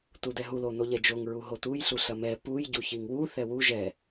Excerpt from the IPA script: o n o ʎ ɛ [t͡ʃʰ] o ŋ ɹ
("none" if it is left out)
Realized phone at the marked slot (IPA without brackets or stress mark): d͡ʒ